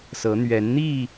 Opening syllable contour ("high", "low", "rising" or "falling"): rising